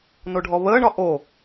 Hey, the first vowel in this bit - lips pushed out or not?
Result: yes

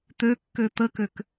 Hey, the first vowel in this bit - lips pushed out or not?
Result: yes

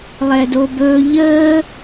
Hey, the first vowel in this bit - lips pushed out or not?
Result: no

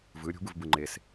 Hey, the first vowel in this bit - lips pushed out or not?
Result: no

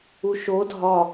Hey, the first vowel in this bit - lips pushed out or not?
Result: yes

